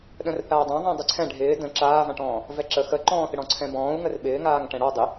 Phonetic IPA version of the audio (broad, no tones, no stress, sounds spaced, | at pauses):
ɗ ə̃ r θ aː dˤ ã ðˤ ɛ̃ dˤ ɪ ǀʰ ɛ̃ ɖʱ ɪː d ə̃ ǁ aː v ã ʈ ɔ̃ː | v ɛ ǁ ə x ə ǃ ɔ̃ː θ ɪ ɽ ɔ̃ ǀʰ ɛ̃ b ɔ̃ː u̯ ŋ ə r ɓ ɪː ŋ aː ŋ ʈ ɛ̃ ɽ ɔ dˤ ɪ